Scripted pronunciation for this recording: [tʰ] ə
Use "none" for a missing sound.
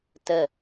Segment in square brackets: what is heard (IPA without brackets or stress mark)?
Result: t